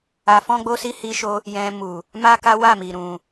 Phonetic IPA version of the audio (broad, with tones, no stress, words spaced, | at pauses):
a˧fɔ̃˦ɡ͡bo˦si˦ hi˧ʃo˧ | jɛ̃˧mu˨ | ma˦ka˦wa˦˨mi˨ ɾũ˨